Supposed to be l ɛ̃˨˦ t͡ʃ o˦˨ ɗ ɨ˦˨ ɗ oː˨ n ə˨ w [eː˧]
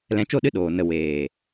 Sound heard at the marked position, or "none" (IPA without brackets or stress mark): eː˨